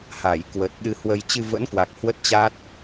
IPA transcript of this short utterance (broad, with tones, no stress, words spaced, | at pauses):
ha˧˩j kwə˨˩t̚ɗɨ˧hwə˧j t͡ɕɨ˧və̰˧˥nkwa˨˩k̚ hwə˦˥t̚t͡ɕa˦˥t̚